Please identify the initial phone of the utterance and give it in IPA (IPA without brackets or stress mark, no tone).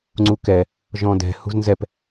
ŋ͡ǀ